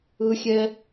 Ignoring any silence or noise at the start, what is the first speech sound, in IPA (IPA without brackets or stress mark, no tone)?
ɯ